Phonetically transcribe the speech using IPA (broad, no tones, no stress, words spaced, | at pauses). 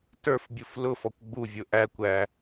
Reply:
tə˞fbʲuf lʊ fɔkʷɡ͡buvʲʊ ʔækʷæ